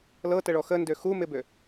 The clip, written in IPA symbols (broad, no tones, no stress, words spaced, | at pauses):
lɤtəɭɔ xəndø xumɪbø